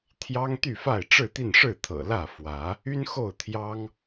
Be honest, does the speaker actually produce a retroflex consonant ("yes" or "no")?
yes